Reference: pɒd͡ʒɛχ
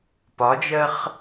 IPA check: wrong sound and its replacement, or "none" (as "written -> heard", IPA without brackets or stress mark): ɛ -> ɜ